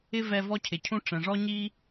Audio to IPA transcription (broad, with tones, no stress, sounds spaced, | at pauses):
ɪ˦ v ɛ˧ v ɔ˦ cʰ ɪ˨ cʰ ũ˦ ʈ͡ʂ ɛ̃˨ ʐ ɔ˦ ɲ i˦